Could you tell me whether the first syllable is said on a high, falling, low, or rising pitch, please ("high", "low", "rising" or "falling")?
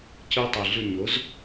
high